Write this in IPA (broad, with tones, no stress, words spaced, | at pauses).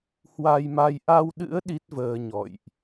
hwa˧jma˧j ʔa˧wɗɨ̰˧˥ə̯ ɗi˦˥t̚vəː˧ɲɔ̰˧˨jʔ